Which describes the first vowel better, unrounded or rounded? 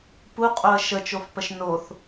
rounded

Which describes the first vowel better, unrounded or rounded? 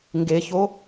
unrounded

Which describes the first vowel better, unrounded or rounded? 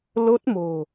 rounded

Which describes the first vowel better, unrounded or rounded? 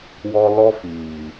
rounded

